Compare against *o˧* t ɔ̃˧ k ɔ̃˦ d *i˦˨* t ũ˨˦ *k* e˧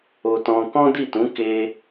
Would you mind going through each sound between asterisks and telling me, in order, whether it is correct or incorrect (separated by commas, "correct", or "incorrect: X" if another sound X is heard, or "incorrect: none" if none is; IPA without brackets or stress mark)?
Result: correct, correct, correct